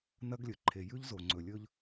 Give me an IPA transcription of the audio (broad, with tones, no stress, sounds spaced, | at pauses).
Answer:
n ɐ˦ ɡ lʲ ɵ˨ ǃʰ e˨ j ʉ˦ ʎ z o˨ ŋ͡ǀ ɵ˨ lʲ ɵ˦ ʎ